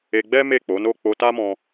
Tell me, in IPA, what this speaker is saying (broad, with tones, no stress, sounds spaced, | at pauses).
e˧ ɡ͡b ɛ˦ m e˦˨ k͡p o˨˦ n o˦˨ k͡p o˧ t a˦ m ɔ̃˧